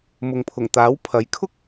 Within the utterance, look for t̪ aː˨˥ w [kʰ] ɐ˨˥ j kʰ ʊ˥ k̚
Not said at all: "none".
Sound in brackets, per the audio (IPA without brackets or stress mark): pʰ